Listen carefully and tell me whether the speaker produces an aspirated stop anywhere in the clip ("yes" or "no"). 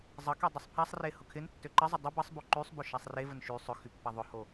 yes